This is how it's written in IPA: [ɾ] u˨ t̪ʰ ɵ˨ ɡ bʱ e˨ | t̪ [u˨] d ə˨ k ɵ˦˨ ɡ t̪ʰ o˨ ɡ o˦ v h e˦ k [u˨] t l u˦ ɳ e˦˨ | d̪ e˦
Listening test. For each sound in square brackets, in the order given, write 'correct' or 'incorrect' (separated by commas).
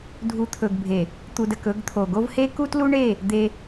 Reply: incorrect, correct, incorrect